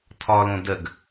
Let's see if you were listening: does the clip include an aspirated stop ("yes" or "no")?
yes